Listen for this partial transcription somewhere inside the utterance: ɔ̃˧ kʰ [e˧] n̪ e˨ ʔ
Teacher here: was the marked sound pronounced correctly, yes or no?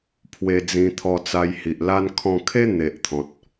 no